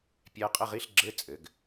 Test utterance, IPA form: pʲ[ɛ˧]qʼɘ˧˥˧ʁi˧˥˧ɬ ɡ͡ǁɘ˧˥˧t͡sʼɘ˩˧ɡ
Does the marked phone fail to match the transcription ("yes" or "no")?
no